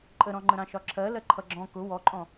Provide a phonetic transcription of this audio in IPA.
ǃʼ ə ɾ ɔ̃ ŋ͡ǃ ə̃ ɾ ɑ̃ ʃ ɒ ǁʰ ɜ l ɜ ǃʰ ʌ ɡ͡ǁ ɔ̃ k ʊ w ɔ ǃʼ ɔ̃

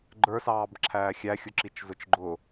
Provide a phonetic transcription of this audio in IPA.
ɡ͡ǃ ə˞ s ɑː b ǁʰ æː xʲ æ xʲ ʊ ǁ i t͡ʃ z ʊ t͡ʃ ɡ͡ǃ ʊ

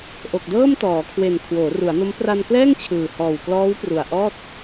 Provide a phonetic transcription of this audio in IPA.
ʔ o˨˩ k̚ d ɤː˥˩ m t ɔː˩˦ kʰ w e˨˩ n kʰ w oː˩˦ r u˩˦ a̯ n o˦˥ m p r a˧ n k l ɛː˥˩ ŋ t͡ɕʰ ɯː˨˩ h ɔː˨˩ w k l ɔː˦˥ w p r u˨˩ a̯ ʔ ɔː˥˩ t̚

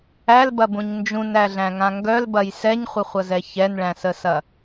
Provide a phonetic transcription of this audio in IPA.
æ l b ɐ b ũ ɲ n d͡ʒ ũ n æ ɮ æ̃ ŋ ã ŋ ɡ œ l b ɐ j s ɛ ɲ χʷ ə χʷ ɐ z ɛ ç ɛ n ɭ æ̃ s ə s ɐ

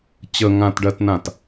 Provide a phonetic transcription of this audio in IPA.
t͡ɕ ə ŋ ã t ɖ ɜ t n ã t

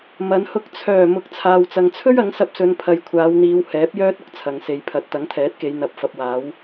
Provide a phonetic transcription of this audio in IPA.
m ɐ˨˧ n h ʊ˧ k̚ t͡sʰ œː˨˩ m ʊ˨˥ k̚ t͡sʰ aː˨ w t͡s ɐ˨ ŋ t͡sʰ ɵ˥ ɥ ɐ˨˥ ŋ s ɐ˧ p̚ s ɵ˨˧ n pʰ ɐ˨ j kʷʰ aː˨˧ w n̪ iː˨˧ w h ɛː˨˥ p̚ j œː˥ t̚ ʊ˧ k̚ t͡sʰ ɐ˨ ŋ s e˨ j pʰ ɐ˨˥ t̚ t̪ ɐ˨˥ ŋ t̪ʰ ɛː˨˥ t̚ k e˨˧ j n̪ ɐ˨ p̚ f ɐ˨ p̚ w aː˨˧ w

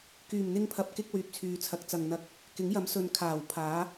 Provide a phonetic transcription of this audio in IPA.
k yː˨˩ m n̪ ɪ˧ ŋ pʰ ɐ˨ p̚ k ɪ˧ k̚ w yː˨ p̚ t͡sʰ yː˨ t͡sʰ ɐ˨˥ k̚ t͡s ɐ˨ ŋ n̪ ɐ˧ k̚ | k ɪ˨˥ ŋ j ɐ˨˥ m s ɵ˧ n kʰ aː˨˩ w pʰ aː˨˥

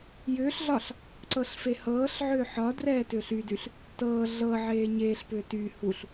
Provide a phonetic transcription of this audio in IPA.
j ʏː ɬ ɮ ɒ ɬ | ǀ ɤ ɬ f e h ɤː ɬ ʕ ʏː ħ ɒ d r ɛː t ʏː ɬ y d y ɬ | t ɤː ɮ ɤ ʕ eː ɲ eː ɬ p ʏː t y h u ɬ

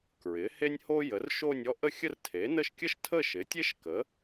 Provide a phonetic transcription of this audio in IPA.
k ɹ ɪ˩˥ h e˥ nʲ h o˥ j ə˩˥ r ʃ o˥˧ nʲ ɔ˥ ʔ ə˥˧ xʲ ə˥˧ r tʰ e˩˥ n ə˥˧ ʃ kʲ ə˥ ʃ tʰ ə˥˧ ʃ ɪ˩˥ tʲ e˥ ʃ k ə˩˥

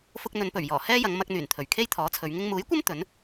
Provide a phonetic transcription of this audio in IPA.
f ʊ˧ k̚ n̪ ɵ˨˧ n p ɵ˨˩ ɥ j ɔː˨˩ h ɛː˥ j ɐ˨˧ ŋ m ɐ˧ k̚ n̪ yː˨˩ n t̪ʰ ɵ˨˩ ɥ kʰ e˥ j t̪ʰ ɔː˨˥ t͡sʰ ɵ˨˧ ɥ ŋ ɪ˧ ŋ m uː˨˥ j kʷ ɐ˥ m t̪ ɵ˨˥ n

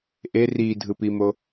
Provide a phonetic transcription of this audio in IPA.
ʔ e r i dʱ ɯ p i m o

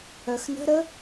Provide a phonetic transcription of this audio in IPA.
œ x n ə̤ ɾ ə

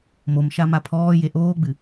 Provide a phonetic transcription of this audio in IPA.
m o m ʃ a m a pʰ ɔː j e ʔ oː ɡ͡b ɨ

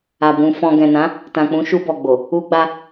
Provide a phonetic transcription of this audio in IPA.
a˨ b ũ˧ f ɔ̃˧ ɡ ɛ̃˨ n ã˨˦ | t ã˨ k͡p ũ˨˦ ʃ u˧ b ɔ˨ ɡ͡b o˨ | u˧ ɡ͡b a˧

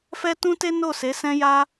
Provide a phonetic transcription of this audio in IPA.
f ɛ˦ t ũ˦ t e˦ n o˦˨ s e˨˦ s ɛ̃˦ j a˦

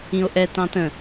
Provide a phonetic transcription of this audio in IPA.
ĩ o̯ ʔ ɛ t ɑ̃ t ə̃

